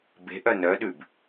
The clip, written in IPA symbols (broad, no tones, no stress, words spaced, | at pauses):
be̤ʔœ nœɗʉb